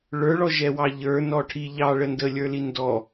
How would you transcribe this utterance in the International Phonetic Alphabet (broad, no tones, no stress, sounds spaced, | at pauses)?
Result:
ɭ ə˞ ɭ ɔ ʒ ɛ w ɑ ʎ ə˞ n ɔ ʈʰ i ʎ ɑ ɭ ə n d ə lʲ ə˞ l i n d ɔ